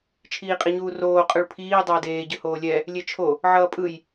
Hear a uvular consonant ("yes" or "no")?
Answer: yes